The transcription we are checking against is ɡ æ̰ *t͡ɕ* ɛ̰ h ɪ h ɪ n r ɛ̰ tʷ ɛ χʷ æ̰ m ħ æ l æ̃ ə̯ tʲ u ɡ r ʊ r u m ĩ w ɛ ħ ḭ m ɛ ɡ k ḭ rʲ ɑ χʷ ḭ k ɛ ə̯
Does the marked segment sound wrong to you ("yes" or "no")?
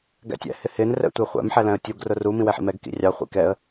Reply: yes